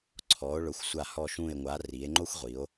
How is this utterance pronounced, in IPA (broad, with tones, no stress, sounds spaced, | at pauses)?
ǀʰ ɔ˩˧ o̯ ɭ ʊ˩˧ xʷ sʷ a˧˩ h ɔ˧˩ ʃ ũ˧˩ e̯ ŋʷ a˩˧ r i˩˧ e̯ ŋ͡ǃ o˥ xʷ ʁʷ i˩˧ o̯